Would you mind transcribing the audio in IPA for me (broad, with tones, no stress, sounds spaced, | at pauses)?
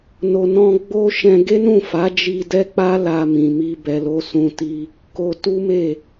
n o˨ n ɔ̃˧ ɡ͡b o˦ ʃ ɛ̃˧ ɡ e˦ n ũ˦˨ f a˨˦ d͡ʒ i˧ d ɛ˦ k͡p a˦ l a˧ m ĩ˨ m i˧ b ɛ˨ l o˨˦ s ũ˧ t i˧ | k o˧ t u˦ m e˦˨